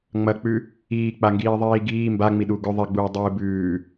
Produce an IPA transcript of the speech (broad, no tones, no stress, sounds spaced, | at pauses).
ŋ͡m ɐ k͡p ʉ | iː k͡p a ŋ ɡ iː ðˤ iː ɡ iː m b a ŋ͡m i ɗ u ɡ ɵ ðˤ i ɡ͡b uː dˤ ɨː b ʉː